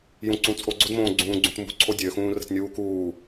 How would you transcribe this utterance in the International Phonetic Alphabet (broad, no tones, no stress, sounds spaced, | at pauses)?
j ũ ǀ ũ t͡sʼ o ɡ͡ǀ o d m õː ɡ͡ǀ ũː ɡ͡ǀ ũ t m ṳ ǀʰ o dʲ ø x ũː r ə̤ t nʲ uː k uː